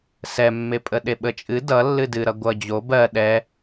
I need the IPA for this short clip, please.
s ɛ mː e pʼ ə ɗ e ɓ ə t͡ʃʼ ɨ d ʌ lː ɨ d ɨ ɾ ʌ ɡʷ ʌ d͡ʑ o b ɜ ɗ ɛ

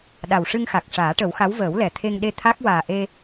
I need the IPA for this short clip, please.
ɗ a˨˩ w ʂ ɨ˧ ŋ x a˨˩ k̚ ʂ aː˨˩˦ ʈ ə˨˩˦ w x a˧˥ w v əː˨˩˦ w l ɛ˨˩ t̪ʰ e˧ ŋ ɗ e˧ t̪ʰ a˦˥ k̚ w aː˨˩ ʔ e˧

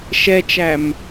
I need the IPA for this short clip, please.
ʃ ɛ t͡ʃ æ m

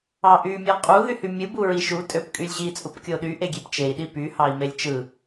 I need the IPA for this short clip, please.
ɑ ʔ y mʲ ɑ qʼ u ð y h y mʲ ɯ b u ɹ i ʃ u tʼ ø p kʼ y lʲ ʑ i t͡sʼ u p kʲ o ɗ y ʔ e ɡʲ e p t͡ʃ e i̯ ɗ i p y h ɑ i̯ m e lʲ t͡ʃ ɯ

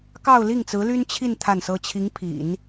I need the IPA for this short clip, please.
k ɑ˥˧ ʊ̯ l i˥˩ ŋ t͡s ɹ̩˧˥ l y˥ n t͡ɕʰ i˥˧ n t̪ʰ a˥˩ n s ɤ˥ t͡ɕʰ i˧˥ ŋ pʰ ḭ˨˩˦ n

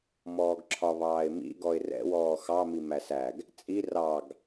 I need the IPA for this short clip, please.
m ɔː ɡ ǁʰ ɒ β ɑː ɪ̯ m ḭ ɡ ɔ ɪ̯ r ɛ̰ w ɔː x ɑ m i m æ s æ ɡ | t͡sʼ i r ɑ ɡ

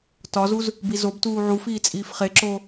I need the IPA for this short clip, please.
t ɒ z u z | b i z o b t uː ʕ u f iː t͡sʼ iː f χ e ǁ oː

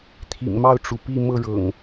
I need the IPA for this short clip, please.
t̪ʰ ḭ˨˩ ŋ m ɑ˥˨ ʊ̯ ʈ͡ʂ u˩ p i˥˨ m ɤ˥˨ ɻ ɤ̰˨˩ ŋ

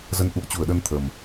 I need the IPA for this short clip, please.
z ə˧ n ʔ ṵ˧˨ ə̯ t͡ɕ u˧˩ ə̯ ɗ ə˧ n t̪ʰ ə˨˩ m

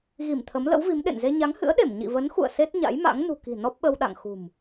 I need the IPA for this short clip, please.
ɣ i˧˩ m t̪ʰ ə˨˦ m l ə̰˧˥ w v i˨˦ m ɗ ḛ˧˨ n z e˧ ɲ a˨˦ ŋ h ɨ̰˧˥ ə̯ ɗ e˧˩ m ɲ ḭ˧˨ v ə˨˦ n x ṵ˧˨ ə̯ s e˦˥ t̚ ɲ a̰˧˥ j m a̰˧˥ ŋ n ṳ˨˩ k i̤˨˩ n ɔ˦˥ p̚ ɓ ə˧ w ɗ a̰˧˨ ŋ x ṳ˨˩ m

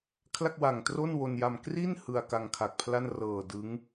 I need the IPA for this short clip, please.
kʰ l a˥˩ k̚ w a˨˩ ŋ t r o˥˩ n w o˧ n j a˧ m k r i˥˩ n h ɯ˧ a̯ k a˧ ŋ kʰ a˨˩ k̚ pʰ l a˥˩ n r ɤː˨˩ d ɯ˦˥ ŋ

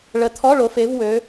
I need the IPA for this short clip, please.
ɭ ə˨˩˦ t̪ʰ ɔ˧˥˧ ɭ o˨˦ f e˨˦ v w ø˨˦

